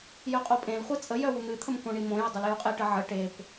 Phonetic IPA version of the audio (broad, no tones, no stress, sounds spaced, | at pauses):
j œ qʼ o pʼ ẽ l χʷ i t͡sʼ ə j œ w u n̪ ɨ t̪ʰ ə m k õ ɳ i m õ j ə dˤ u l j u qʼ e ʈ ə ʕ ə ʈ e p